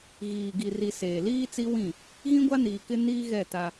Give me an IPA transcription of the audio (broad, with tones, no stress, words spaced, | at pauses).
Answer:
ɣiː˨ ɡi˨ri˨ seː˨liː˦t͡si˦ wĩ˦˨ | ɣĩ˦ɡʷa˦niː˨kɪ˦ niː˦ɣɛ˦˨ ta˦